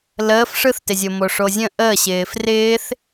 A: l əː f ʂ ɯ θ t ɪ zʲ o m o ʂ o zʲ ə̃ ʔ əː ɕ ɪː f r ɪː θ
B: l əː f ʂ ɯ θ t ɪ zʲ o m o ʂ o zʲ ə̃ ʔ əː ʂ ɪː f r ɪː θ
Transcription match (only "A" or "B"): A